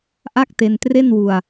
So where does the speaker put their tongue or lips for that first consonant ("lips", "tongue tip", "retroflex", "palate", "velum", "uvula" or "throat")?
throat